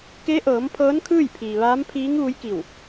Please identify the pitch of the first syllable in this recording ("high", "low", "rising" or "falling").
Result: rising